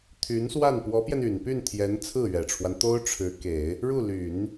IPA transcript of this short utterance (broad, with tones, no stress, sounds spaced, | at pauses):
t̪ʰ y˧˥ n s w a˥˩ n p w ɔ˧˥ p j ɛ˧ n y˨˩ n p y˥˩ n t̪ʰ j ɛ˧˥ n t͡sʰ ɹ̩˥˩ ɥ ɛ˨˩ ʈ͡ʂʰ w a˦ n t̪ o˥ ʊ̯ ʈ͡ʂʰ ɻ̩˧˥ k e˨˩˦ ɪ̯ | ɻ u˥˩ l y˨˩˦ n